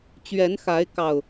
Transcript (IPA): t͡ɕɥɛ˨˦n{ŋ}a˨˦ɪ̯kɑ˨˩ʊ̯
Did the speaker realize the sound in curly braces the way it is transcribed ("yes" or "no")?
no